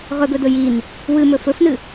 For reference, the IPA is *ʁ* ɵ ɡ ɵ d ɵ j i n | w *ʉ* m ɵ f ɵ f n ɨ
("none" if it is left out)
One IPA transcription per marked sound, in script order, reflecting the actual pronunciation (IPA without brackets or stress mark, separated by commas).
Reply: ʁ, ɨ